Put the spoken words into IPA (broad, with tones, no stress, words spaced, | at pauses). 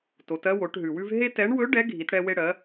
to˩˧tɜ˥wo˩˧ʈ ɦʉ˩wʉ˧v ɦe˥tɛ˧˥ɳ wɵ˧˥ ɖɛ˧˥ɡʱi˩˧tɽɛ˧ we˧ɽɜ˩˧